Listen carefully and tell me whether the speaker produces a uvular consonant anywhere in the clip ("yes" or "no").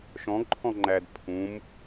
no